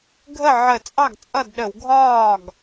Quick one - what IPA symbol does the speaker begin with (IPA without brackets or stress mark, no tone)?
ɡʱ